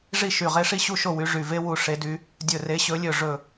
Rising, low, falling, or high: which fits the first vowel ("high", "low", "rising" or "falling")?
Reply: falling